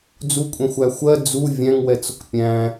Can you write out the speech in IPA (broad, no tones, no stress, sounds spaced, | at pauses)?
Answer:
d͡z u kʷʼ ɛ̃ xʷ æ xʷ ɜ d͡z u vʲ æ̃ ŋ w ɛ t͡s ʊ k pʲ æ̃